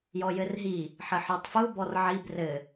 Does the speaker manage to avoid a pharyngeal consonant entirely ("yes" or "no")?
no